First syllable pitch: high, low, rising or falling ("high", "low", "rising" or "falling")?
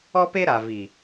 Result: high